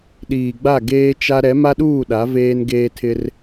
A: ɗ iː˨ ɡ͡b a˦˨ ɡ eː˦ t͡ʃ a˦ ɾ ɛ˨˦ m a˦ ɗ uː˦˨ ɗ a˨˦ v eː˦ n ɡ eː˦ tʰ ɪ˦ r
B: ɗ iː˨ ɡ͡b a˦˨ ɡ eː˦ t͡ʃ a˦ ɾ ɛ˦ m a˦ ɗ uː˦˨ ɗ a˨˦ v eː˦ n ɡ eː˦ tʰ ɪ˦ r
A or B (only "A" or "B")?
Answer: A